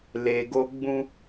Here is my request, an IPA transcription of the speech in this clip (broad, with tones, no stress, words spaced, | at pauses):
le˨ɡo˦ ɡ͡bũ˦